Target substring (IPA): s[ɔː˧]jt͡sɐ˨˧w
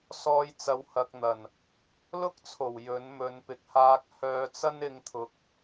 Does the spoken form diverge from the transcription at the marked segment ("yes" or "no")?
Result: no